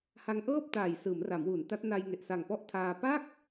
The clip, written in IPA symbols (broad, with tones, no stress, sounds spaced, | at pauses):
h a˦˥ ŋ ʔ ɤː˥˩ p̚ t aː˨˩ j s ɯː˩˦ m r a˩˦ m w uː˩˦ n t a˦˥ t̚ n a˧ j ŋ e˨˩ ʔ s a˨˩ ŋ p ɔ˥˩ ʔ tʰ aː˧ p a˥˩ k̚